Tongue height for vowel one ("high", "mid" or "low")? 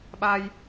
low